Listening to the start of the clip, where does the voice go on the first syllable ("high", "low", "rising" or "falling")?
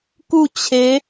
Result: falling